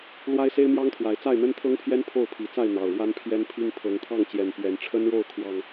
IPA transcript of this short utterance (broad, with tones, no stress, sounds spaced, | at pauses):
l w a˦ ɪ̯ s e˦ ɪ̯ m j ɑ˦ ŋ t̪ʰ w a˨˦ ɪ̯ t͡s a˥˨ ɪ̯ n̪ ə˦ n t̪ʰ ɤ˦ ŋ pʰ j ɛ˦ n pʰ o˥˨ ʊ̯ pʰ i˨˦ t͡s a˥˨ ɪ̯ n̪ ɑ˨˩ ʊ̯ ɻ w a˦ n pʰ j ɛ˦ n pʰ i˦ ŋ pʰ ɤ˨˦ ŋ t̪ʰ ɑ˥˨ ŋ t͡ɕ j ɛ˨˩ n p ɥ ɛ˨˦ n ʈ͡ʂʰ ə˦ n ɻ o˥˨ ʊ̯ kʰ w ɑ˨˩ ŋ